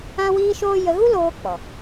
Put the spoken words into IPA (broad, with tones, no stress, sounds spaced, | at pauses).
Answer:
ã˦ w iː˦ ʃ oː˦ j ə˧ ɣ u˦ l oː˧ k͡p ɔ˨